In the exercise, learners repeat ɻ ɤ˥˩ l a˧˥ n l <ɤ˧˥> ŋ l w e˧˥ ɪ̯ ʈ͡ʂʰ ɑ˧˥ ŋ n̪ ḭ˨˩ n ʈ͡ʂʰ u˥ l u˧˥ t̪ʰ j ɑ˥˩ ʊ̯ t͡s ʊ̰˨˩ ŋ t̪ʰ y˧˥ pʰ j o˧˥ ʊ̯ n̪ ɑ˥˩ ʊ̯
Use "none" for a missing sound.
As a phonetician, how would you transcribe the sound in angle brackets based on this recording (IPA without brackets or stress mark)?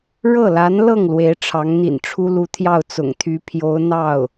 ɤ˥˩